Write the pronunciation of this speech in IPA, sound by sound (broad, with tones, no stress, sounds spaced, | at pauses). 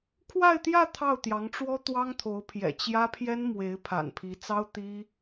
kʰ w a˥˧ ɪ̯ t̪ j ä˥˧ t̪ʰ ɑ˥˩ ʊ̯ t̪ j ɑ˧˥ ŋ ʈ͡ʂ w ɔ˥ t̪ w ɑ˥ ŋ t̪ʰ o˧˥ ʊ̯ pʰ j ɛ̰˨˩ t͡ɕ j ä˥ pʰ j ɛ˥ n m w e˧˥ ɪ̯ pʰ a̰˨˩ n pʰ i˧˥ t͡s ɑ˥ ʊ̯ t̪ i˥